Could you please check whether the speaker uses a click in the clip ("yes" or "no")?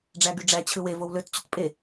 no